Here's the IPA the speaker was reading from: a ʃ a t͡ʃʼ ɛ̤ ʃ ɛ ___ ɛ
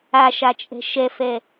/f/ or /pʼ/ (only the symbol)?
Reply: f